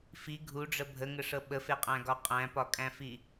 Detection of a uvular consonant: present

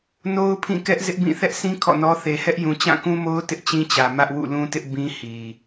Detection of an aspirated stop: present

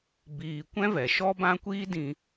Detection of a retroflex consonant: absent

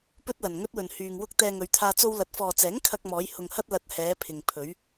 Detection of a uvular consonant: absent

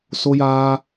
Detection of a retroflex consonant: absent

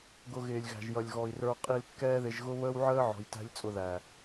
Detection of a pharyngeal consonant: present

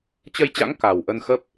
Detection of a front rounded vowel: absent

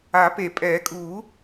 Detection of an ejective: present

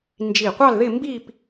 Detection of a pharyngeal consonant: absent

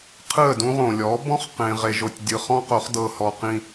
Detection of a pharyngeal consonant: absent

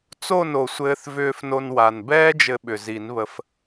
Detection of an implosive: present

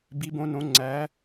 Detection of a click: present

